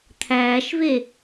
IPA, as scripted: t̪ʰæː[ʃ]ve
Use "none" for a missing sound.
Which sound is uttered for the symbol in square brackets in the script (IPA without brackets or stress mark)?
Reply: ʃ